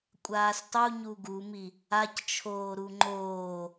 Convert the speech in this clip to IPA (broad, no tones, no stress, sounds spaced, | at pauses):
kʷʼ aː s tˤ u ɲ u ɡ u m i | a c t͡ʃʰ oː ɾ u ŋ͡ǃ oː